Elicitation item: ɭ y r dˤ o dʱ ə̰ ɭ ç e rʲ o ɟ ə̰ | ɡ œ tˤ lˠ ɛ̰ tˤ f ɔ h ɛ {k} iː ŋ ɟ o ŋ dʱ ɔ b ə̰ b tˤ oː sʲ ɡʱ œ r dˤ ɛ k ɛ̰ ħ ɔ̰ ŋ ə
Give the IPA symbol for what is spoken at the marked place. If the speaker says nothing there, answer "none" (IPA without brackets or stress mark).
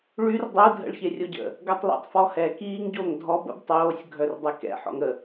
k